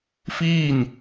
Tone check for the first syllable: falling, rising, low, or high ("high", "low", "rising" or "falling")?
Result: falling